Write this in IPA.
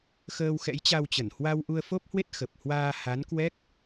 x əː˧ w x ɛ̰˧˥ j t͡ɕ a˧ w t͡ɕ ə˧˩ n h w a˧ w ʔ u˧ ə̯ f o˦˥ p̚ h w e˦˥ t̚ x ə˨˩ p̚ h w aː˧ h a˨˦ n k w ɛ˦˥ k̚

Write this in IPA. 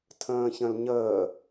tʰ ə̃ː ç ə̃ l ɲ əː

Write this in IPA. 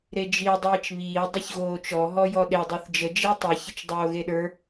ɾ e d͡ʒ i dˤ iː t͡ʃ β iː dˤ i ç ɣ oː t͡ʃ ɔ ɦ ɔ j ɔ ɗ e dˤ ə˞ θ d͡ʒ ə d͡ʒ e tˤ i ç ə t͡ʃ dˤ oː ɣ e ɗ ə˞

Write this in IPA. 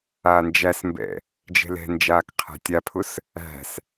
aː n d͡ʒ æ s m b ɛ̰ | d͡ʒ ɛ̤ l ɛ̤ n d͡ʒ aː k qʰ æ̤ tʲ a pʰ ʊ s | æ̤ s

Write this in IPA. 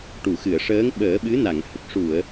ʈ u˨˩˨ x ɨ˨˩˨ ə̯ ʂ əː˧˥ ŋ ɓ əː˨˩˦ ɓ ɨ˧˥ n a˨˩˨ ŋ h ə˨˩ k̚ ʂ u˨˩˨ ə̯

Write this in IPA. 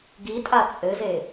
ɡ i tʼ a t͡sʼ ɘ z e

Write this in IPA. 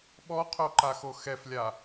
ɓ ɔ qʰ o ǃ a x o x ɛ f lʲ a

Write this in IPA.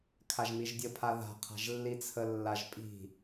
kʰ a ʒ m i ʒ dʲ ə pʰ a ð a̤ qʰ a̤ ʒ lː i t͡sʰ ə lː a ʒ pʼ i̤

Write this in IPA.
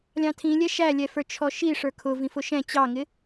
lʲ ɑ̃ tʰ ĩ lʲ ɛ ʃ æ lʲ ɛ f ə˞ t͡ʃʰ ɔ ʃ i ʂ ə˞ kʰ ʊ v ĩ f ʊ ʃ ɛ̃ t͡ɕ ɑ ŋ ɪ

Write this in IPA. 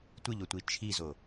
tʷ ɨ ʎ o tʷ i t͡ʃʰ i z o

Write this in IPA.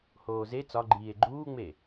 h oː z e t͡s ɒ ɡ͡ǃ iː e̯ ɡ͡ǃ uː ŋ͡m e

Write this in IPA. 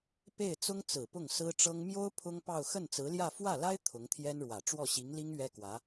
p e˥˩ ɪ̯ t͡s ʊ˥ ŋ t͡s ɹ̩˨˩ p ʊ˥˩ ŋ s ɹ̩˥ ʈ͡ʂ ɤ˥ ŋ m j o˥ ʊ̯ pʰ ʊ˥ ŋ p ɑ˥˧ ʊ̯ x ə˥˩ n t͡s ɹ̩˧˥ l j ä˥˧ f w ä˥˩ l a˥ ɪ̯ t̪ʰ ʊ˧˥ ŋ t̪ʰ j ɛ˥ n ɻ w ä˨˩ ʈ͡ʂ w ɔ˥˩ ɕ i˧˥ ŋ l i˥ ŋ ɥ ɛ˥ k w ä˧˥

